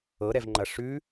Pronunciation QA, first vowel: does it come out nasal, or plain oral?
oral